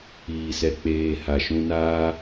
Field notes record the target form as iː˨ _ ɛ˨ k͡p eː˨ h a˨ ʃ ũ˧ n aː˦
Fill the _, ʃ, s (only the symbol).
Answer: s